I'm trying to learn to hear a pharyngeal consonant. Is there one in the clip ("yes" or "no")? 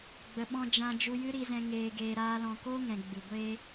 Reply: no